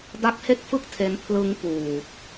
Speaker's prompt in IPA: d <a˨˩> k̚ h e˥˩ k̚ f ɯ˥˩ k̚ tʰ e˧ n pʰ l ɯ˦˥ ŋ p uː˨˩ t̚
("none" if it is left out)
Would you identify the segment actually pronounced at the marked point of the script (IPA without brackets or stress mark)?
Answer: a˦˥